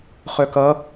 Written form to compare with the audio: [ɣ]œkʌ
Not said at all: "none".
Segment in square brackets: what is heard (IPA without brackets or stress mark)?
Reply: χ